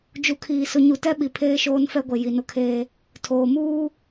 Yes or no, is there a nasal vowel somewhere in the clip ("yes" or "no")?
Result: no